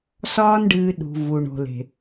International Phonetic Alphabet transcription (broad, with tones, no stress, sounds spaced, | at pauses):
s ɒː˧ n ɖ ɨː˨ ɗ ṳ˨ v u˨ ɳ o̤˨ l e̤˨